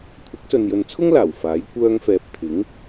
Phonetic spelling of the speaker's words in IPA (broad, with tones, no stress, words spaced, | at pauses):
kʷʰɐ˨˥k̚sɵ˨njɵ˨nt͡sʰʊ˥ŋ laː˨˩w faː˨˥j kʷœː˥ŋfɛː˧p̚ t̪ʰɪ˨˥ŋ